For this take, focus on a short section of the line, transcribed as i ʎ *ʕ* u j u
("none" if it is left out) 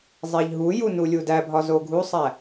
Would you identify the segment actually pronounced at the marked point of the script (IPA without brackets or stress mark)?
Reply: ɦ